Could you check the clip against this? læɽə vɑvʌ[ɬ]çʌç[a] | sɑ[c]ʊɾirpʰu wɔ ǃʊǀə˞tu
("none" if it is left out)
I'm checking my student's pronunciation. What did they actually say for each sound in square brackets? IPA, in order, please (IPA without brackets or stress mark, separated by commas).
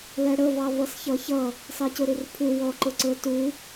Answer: s, ʌ, c